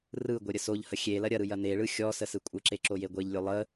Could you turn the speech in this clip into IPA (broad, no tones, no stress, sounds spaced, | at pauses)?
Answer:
r ɯ ɡʷ e ɾʲ ə s o ʎ h ə xʲ e l ɐ ɾʲ ɐ ɾ ɯ j ɐ n e ɭ ɯ xʲ ɔ s ə s ɯ kʷʼ ə ǁ e ǁ o j e ɡʷ e ʎ lʲ o lˠ ə